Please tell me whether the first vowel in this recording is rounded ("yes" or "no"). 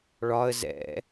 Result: yes